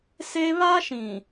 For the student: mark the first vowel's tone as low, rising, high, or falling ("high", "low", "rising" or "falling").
high